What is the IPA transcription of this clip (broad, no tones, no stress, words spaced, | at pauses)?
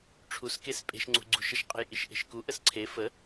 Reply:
ʈ͡ʂʰuskes pʼe̤ʃŋ͡ǀṳɡ͡ǀṳʃəʃ qʼə̤jʔiʃʔe̤ʃku ʔəsǀʰe fə